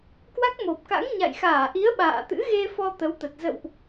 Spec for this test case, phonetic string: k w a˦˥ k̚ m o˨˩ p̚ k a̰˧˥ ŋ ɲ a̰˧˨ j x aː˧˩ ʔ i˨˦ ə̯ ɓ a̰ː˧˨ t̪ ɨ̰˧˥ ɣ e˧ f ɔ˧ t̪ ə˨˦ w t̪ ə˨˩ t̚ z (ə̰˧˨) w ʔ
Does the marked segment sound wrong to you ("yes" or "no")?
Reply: no